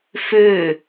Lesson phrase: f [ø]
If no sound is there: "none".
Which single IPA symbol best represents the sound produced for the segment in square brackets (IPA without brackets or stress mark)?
ø